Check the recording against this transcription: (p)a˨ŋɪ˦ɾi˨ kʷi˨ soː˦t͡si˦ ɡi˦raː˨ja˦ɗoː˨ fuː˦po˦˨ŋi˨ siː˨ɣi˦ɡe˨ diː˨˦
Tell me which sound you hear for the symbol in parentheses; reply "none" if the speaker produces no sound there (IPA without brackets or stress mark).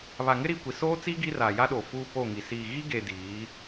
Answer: β